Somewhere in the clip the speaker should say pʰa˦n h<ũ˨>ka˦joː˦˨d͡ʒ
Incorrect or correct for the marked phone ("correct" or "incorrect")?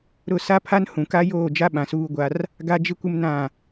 correct